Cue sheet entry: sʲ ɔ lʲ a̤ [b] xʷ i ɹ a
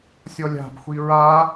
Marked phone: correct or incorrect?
correct